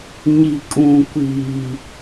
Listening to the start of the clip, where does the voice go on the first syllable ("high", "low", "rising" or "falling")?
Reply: low